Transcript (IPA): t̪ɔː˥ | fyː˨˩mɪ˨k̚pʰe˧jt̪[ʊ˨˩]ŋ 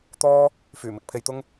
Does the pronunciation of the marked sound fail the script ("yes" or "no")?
yes